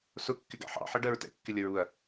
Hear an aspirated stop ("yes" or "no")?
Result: no